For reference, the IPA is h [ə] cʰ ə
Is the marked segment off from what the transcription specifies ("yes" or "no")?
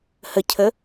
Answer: no